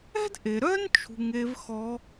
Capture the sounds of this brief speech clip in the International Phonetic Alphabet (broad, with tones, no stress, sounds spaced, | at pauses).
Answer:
ɛ̤˥ d ʔ e˩ ɾ œ˥ n t͡ʃʰ ṳ˧ ŋ e˧˥ v x ɔ˧˥